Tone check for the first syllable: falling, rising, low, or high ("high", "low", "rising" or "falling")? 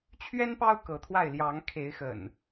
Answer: high